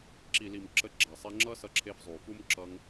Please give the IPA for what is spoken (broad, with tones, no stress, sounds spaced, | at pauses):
ǁ i˨ l i˨ m ǁ ə˧ ɡ͡ǁ a˨ sˤ e˧ ŋ͡ǁ ʌ˦ s ʌ˧ ǁʰ e˧ f zˤ u˨ f u˦ m ǁ ʌ˧ ŋ